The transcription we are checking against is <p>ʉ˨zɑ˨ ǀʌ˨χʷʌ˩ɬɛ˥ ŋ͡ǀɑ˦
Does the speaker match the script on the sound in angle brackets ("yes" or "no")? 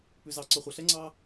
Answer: yes